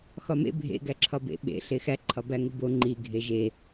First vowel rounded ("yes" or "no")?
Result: yes